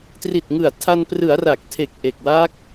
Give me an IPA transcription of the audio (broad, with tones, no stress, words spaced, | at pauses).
tri˨˩t̚ŋɯ˨˩a̯ tʰa˧n prɯ˩˦a̯ra˨˩k̚tʰe˨˩k̚ ʔe˨˩k̚wa˦˥k̚